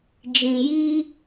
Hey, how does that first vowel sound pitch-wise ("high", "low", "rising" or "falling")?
low